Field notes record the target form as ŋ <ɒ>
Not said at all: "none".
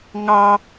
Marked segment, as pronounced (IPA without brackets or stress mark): ɑ